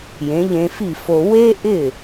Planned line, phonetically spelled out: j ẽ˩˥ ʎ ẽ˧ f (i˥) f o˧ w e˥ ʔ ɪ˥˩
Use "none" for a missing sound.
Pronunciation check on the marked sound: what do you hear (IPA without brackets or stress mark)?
i˥˩